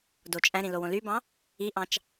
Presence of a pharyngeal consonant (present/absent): absent